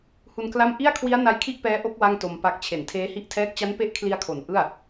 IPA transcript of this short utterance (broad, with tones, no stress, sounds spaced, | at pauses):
h u˧ n k l a˥˩ m ʔ i˥˩ a̯ kʰ w i˦˥ a̯ n a˦˥ j kʰ i˥˩ ʔ p ɛː˦˥ ʔ o˦˥ k̚ w a˥˩ ŋ t o˧ m p a˦˥ k̚ t͡ɕʰ e˨˩ n tʰ eː˦˥ h i˥˩ ʔ tʰ ɛː˥˩ k̚ t͡ɕ a˦˥ n p e˦˥ ʔ kʰ l i˧ a̯ kʰ o˩˦ n ʔ ɯ˥˩ a̯